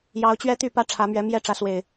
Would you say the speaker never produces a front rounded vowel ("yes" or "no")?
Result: no